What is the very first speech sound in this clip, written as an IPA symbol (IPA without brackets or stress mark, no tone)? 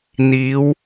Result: n̪